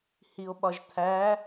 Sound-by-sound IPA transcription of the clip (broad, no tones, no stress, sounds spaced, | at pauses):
h i o̯ ɓ ɒ ʒ t̪ʰ æ